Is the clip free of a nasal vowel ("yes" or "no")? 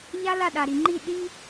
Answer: yes